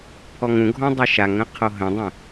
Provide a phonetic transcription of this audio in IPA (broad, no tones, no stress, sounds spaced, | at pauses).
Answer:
pʰ ɔ ŋ ũ ɡʱ ɔ̃ dˤ ə ʃ a ŋ ə̃ qʰ o ɦ ə̃ dˤ ə̃